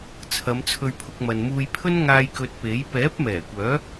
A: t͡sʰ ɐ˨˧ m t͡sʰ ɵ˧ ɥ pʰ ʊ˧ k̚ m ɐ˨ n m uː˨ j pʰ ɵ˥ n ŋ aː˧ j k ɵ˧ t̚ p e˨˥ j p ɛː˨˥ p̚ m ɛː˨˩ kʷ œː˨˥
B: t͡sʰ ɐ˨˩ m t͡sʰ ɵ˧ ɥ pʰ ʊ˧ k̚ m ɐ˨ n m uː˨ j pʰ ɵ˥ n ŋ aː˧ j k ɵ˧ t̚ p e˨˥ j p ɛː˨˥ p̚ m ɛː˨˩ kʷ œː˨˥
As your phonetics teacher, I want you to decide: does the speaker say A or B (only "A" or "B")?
A